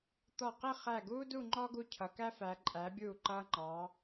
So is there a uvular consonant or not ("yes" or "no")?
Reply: yes